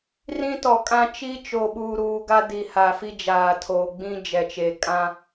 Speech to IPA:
r ĩ˦ t ɔ˨ kʼ ã˦ t͡ʃ i˦ t͡ʃ o˨ ɓ uː˨ ɾ uː˨ ɡ a˦ d i˨ h a˨ f i˦ d͡ʒ aː˨ tʰ oː˨ ɡ͡b ĩ˦ d͡ʒ ɛ˨ t͡ʃ e˨ kʼ ã˦

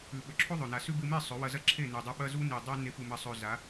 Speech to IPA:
ʉ˨ ɓ ɵ˨ ǁʰ o˦ ðˤ ɵ˨ n a˨ s ʉ˦ b ɨ˧ m e˦˨ sˤ ɵ˨˦ w ɐ˧ z ɐ˦ ǁʰ e˦˨ n e˨ dˤ ɐ˧ ɓ ɐ˧ z u˧ n i˨ dˤ a˧ n e˧ p u˨ m ɐ˨ sˤ ɵ˨ z a˨˦

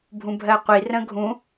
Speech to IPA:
bʱ ũ bʱ ɜ qʷ i r ə̃ ɡʱ ũ

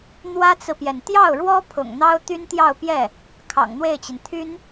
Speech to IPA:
n̪ w ä˥ t͡s ɹ̩˨ p j ɛ˩ n t̪ j ɑ˥˩ ʊ̯ ɻ w ɔ˥ pʰ ʊ̰˨˩ ŋ n̪ ɑ˥ ʊ̯ t̪ y˥ n t̪ j ɑ˥˧ ʊ̯ p j ɛ˥˩ | kʰ ɑ̰˨˩ ŋ n̪ w e˥˩ ɪ̯ t͡ɕ i˩ n t̪ʰ y˥ n

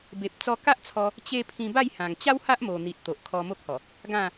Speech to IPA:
b e˨ p̚ t͡s ɔ˧ k a˦ ʔ t͡sʰ ɔ˧ | t͡ɕ e˦ pʰ ĩ˧ b a˥˧ j h ã˨˩ ŋ t͡ɕ a˦ w h a˦ ʔ m o˨˩ n̪ i˨ t̚ t̪ o˨ ʔ kʰ ɔ˧ m o˦ k̚ h ɔ˨˩ | ɡ ã˥˧

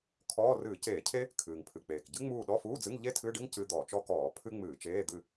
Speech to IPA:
kʰ ɔː˧˥˧ r ɨː˧˩˧ c eː˧˩˧ cʰ e˥ | kʰ ɨː˩ ŋ pʰ ɨ˩ k͡p eː˩ k ɟ ɨ˥ ŋ͡m uː˦˨ ɗ ɔ˧˥˧ f uː˧˥˧ d͡z ɨ˧˥˧ ŋ ʎ e˥ tʰ ɨ˧˥˧ ɖ ɨ˥ ŋ c ɨ˧˥˧ d̪ ɔ˧˩˧ t͡ʃ ɔ˥ k ɔː˧˩˧ pʰ ɨ˥ ŋ͡m ɨː˧˩˧ t͡ʃ eː˧˥˧ d̪ ɨ˦˨

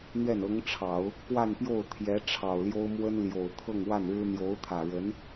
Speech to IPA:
n̪ ɥ ɛ˥˩ n ɤ˧˥ ŋ ʈ͡ʂʰ ɑ˨˩˦ ʊ̯ | k w a˥˧ n p j o˥˩ ʊ̯ t̪ʰ j ɛ˧˥ ʈ͡ʂʰ ɑ˨˩ ʊ̯ l j o˥ ʊ̯ m w ə˥ n l j o˨˩ ʊ̯ t̪ʰ ɤ˥˧ ŋ w a˥˩ n ɻ ɻ̩˥ n̪ j o˧˥ ʊ̯ t̪ʰ ä˨˩ ɻ ə˧˥ n

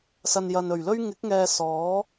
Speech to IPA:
s ɐ˨ n j ɐ˨ n ɵ˨˩ ɥ l ɵ˥ ɥ ŋ ɪ˨˥ k̚ ŋ ɛː˨ s ɔː˨˥

